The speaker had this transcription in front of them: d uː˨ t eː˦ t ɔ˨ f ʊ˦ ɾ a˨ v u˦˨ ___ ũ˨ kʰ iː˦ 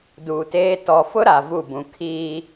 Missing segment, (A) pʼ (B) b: B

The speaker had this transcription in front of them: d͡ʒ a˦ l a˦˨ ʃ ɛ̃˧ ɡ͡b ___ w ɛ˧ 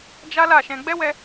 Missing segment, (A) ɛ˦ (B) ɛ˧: A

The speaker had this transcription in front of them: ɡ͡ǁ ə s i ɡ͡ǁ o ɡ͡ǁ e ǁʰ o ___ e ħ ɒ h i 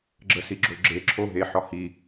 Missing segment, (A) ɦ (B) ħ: A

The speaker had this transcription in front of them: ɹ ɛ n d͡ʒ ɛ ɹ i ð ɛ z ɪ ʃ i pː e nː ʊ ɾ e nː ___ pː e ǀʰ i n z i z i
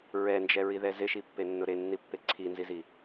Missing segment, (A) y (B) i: B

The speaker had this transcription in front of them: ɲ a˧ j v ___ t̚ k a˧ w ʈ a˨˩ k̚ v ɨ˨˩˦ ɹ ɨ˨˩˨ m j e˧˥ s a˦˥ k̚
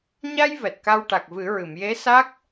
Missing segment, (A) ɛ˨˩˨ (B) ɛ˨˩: B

